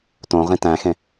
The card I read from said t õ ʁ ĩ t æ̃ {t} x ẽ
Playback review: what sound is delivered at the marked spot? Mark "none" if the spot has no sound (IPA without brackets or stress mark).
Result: none